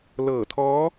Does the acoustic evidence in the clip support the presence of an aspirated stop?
yes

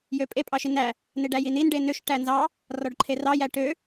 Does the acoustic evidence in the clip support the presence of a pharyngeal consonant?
no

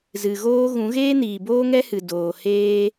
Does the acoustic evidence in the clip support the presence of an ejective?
no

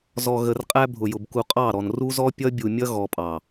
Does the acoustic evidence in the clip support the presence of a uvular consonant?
yes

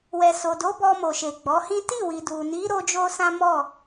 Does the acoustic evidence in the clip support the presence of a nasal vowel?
yes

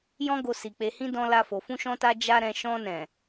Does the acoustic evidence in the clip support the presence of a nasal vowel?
yes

